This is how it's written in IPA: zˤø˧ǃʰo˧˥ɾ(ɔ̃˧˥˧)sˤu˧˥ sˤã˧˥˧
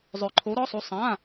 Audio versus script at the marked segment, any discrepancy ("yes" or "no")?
yes